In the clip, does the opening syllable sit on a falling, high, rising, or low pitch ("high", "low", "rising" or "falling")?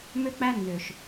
high